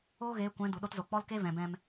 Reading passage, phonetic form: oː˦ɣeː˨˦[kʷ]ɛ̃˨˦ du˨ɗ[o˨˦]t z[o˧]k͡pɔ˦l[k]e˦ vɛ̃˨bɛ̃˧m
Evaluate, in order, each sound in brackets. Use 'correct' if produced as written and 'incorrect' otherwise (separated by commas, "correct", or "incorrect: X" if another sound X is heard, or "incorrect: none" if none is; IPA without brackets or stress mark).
correct, incorrect: o˦, incorrect: o˨, correct